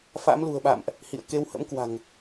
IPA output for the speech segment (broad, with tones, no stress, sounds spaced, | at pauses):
f a̰˧˥ m l ṳ˨˩ ə̯ ɓ a̰˧˨ m ʔ | h ḭ˧˨ ə̯ k e˧ w h ə̰˧˥ m k w a̤˨˩ ŋ